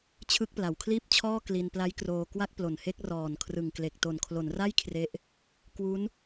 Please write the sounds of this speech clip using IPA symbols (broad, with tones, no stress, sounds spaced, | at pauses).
t͡ɕʰ ɯ˥˩ k̚ p l a˩˦ w kʰ l iː˥˩ p̚ t͡ɕʰ ɔː˥˩ k l i˧ n p l a˦˥ j k r oː˧ k w a˥˩ k̚ p l o˨˩ n h e˥˩ k̚ r ɔː˨˩ n kʰ r ɯ˨˩ ŋ k l e˨˩ k̚ t o˨˩ n kʰ l o˩˦ n r a˥˩ j kʰ r e˦˥ ʔ | k w u˦˥ n